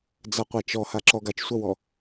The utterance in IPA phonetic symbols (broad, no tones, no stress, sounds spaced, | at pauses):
d͡z a qʷ a t͡ʃ ɔ h a ǁ ɔ ɡ a t͡ʃ sʷ ɐ w ɔ